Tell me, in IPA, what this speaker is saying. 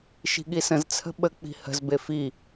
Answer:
ʃ i̤ ɠ i s ə̃ z t͡sʰ ə̤ ɓ ə k͡p i̤ h ə̤ z b e f i

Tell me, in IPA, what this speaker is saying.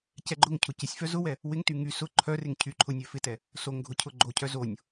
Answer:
c ɛ ɡ͡ǃ ʊ ŋ cʰ ʊ c ɪ sʲ f œ z ʊ w ɛ | w ɪ ŋ t y ŋ y s ʊ ǃʰ œ r ɪ ŋ cʰ y ǃʰ ʊ nʲ œ f ɪ t ɛ | s o ŋ ɡʱ ʊ cʰ ʊ ɡ͡ǃ o cʰ œ z o nʲ

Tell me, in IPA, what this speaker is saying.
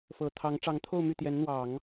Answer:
f ɤ˨˩ t̪ʰ ɑ˧˥ ŋ ʈ͡ʂ ɑ˧˥ ŋ t̪ʰ o˥˧ ʊ̯ m y˥˩ t̪ j ɛ˧˥ n n̪ w ɑ˨˩˦ ŋ

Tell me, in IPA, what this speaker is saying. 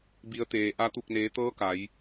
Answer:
b i˩˧ ə̯ t̪ eː˩ ʔ a˧ t̪ u˧˩ k̚ n eː˩˧ t̪ ɤː˧˥ k a˩˧ j

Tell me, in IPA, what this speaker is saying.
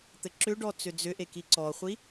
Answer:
t̪ ɘ ǁ ʏ ɖ ɔ t͡s ʏ d͡z ʏ ʔ e k i ǀ ɔ χʷ i

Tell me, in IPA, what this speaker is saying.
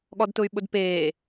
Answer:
ɠ ɔ d t ʊ y̯ ɓ ʊ d p eː

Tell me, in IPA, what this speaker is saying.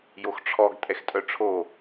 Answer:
j o x ʈ͡ʂʰ ɔ ɡ tʼ ɛ x tʼ œ ʈ͡ʂʰ o

